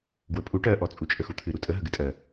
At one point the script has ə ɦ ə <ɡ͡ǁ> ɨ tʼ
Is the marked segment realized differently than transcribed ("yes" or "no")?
yes